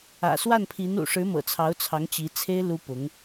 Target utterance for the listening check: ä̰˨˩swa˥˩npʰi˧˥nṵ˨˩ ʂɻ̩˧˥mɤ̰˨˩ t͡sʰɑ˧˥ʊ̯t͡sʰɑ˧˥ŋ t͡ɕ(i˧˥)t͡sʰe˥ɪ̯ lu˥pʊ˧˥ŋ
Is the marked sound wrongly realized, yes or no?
no